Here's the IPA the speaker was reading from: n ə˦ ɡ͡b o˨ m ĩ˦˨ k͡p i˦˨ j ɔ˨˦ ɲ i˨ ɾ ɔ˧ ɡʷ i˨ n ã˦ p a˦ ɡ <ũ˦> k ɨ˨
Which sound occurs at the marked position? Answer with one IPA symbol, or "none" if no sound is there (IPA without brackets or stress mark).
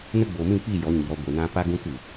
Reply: ũ˦